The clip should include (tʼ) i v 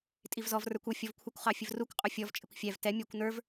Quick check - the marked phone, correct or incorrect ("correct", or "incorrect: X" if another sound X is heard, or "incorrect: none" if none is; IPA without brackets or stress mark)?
correct